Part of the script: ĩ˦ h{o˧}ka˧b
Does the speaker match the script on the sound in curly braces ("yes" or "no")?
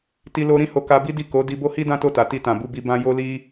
yes